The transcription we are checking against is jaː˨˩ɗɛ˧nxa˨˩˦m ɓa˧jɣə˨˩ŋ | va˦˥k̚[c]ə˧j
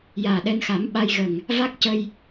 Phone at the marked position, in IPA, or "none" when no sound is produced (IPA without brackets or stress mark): c